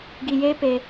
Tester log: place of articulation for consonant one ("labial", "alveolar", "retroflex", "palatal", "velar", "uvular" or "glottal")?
velar